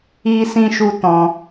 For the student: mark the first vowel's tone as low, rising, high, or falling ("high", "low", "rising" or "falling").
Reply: high